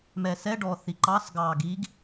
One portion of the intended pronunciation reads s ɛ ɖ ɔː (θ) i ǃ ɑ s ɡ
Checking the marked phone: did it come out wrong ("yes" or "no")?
no